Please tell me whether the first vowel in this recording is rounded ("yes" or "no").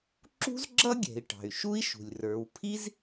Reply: yes